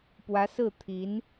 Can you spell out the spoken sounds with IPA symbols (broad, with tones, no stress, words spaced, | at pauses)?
pwä˧˥sɹ̩˥˩t̪ʰi˧˥n